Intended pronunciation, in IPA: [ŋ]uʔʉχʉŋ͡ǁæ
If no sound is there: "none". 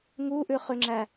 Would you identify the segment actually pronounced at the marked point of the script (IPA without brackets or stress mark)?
ŋ